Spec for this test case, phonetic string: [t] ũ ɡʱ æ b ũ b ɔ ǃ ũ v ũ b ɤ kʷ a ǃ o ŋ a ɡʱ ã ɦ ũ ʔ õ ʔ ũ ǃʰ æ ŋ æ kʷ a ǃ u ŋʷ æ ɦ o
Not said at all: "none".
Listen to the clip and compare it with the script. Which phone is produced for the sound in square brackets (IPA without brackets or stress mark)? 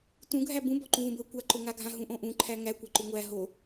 t